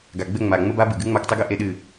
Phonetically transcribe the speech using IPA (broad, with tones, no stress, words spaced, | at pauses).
ɡa˨ɡ͡bɘ˦˨ŋ͡ma˨ ŋ͡mə˦ba˦bɨ˨ɡɨ˦ ŋ͡ma˦ktˤɨ˦ɡɘ˦ ʔe˦ɗɨ˦˨